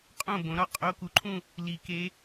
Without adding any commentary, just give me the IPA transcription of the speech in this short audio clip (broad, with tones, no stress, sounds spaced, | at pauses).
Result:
qʼ õ˥˩ b õ˩˥ ɾ ɒ˥˩ qʼ o˧˥ k u˩˥ ǃʰ ũ˥˧ | l i˨˩˦ k e˧˥